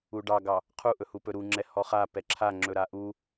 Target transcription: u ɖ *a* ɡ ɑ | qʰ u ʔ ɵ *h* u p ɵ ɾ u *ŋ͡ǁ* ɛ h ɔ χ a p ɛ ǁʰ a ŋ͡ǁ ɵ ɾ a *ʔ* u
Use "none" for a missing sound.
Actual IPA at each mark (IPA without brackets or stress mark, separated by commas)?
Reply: ɑ, h, ŋ͡ǁ, ʔ